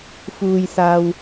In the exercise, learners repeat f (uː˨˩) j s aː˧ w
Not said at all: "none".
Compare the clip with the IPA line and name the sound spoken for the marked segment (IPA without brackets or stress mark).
uː˧